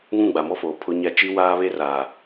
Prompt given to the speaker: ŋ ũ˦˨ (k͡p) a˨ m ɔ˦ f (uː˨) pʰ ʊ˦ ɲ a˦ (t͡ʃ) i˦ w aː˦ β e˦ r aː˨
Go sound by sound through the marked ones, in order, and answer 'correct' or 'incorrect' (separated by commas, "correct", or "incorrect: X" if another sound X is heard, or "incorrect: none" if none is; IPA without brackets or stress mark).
incorrect: ɡ͡b, incorrect: oː˨, correct